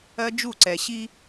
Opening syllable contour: high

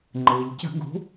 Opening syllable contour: low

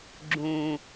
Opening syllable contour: low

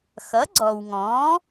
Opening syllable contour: rising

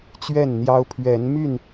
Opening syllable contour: falling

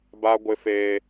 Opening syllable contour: high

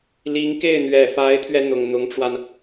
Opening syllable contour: rising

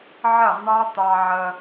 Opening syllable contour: falling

